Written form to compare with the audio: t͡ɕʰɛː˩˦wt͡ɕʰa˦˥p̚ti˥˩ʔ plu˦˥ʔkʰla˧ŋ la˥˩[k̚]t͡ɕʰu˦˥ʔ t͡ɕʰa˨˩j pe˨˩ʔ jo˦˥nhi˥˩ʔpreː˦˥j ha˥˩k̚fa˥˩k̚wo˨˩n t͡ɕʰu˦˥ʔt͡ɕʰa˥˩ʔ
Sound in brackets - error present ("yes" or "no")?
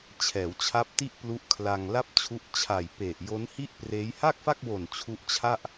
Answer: yes